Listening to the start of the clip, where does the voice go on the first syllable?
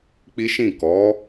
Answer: high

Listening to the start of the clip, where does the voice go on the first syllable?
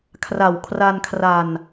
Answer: low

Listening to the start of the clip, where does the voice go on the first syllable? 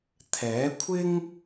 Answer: rising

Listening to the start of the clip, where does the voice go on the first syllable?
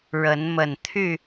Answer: rising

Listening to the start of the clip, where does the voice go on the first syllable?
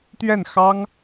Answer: falling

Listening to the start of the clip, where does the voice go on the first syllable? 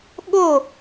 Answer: falling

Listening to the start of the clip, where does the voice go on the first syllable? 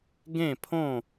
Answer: falling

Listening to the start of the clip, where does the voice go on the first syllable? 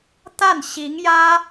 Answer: falling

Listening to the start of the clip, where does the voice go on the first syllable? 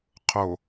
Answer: low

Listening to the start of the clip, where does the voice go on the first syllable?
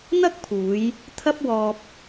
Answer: high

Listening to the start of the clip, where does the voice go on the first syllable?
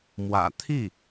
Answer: low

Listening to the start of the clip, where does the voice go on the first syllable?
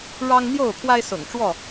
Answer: high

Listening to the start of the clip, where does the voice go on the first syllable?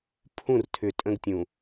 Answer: falling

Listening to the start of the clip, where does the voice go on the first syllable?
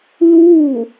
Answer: falling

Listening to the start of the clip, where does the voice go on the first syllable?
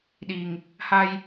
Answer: low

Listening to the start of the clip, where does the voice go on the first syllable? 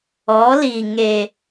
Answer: rising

